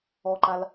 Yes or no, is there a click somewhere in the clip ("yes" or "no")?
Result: yes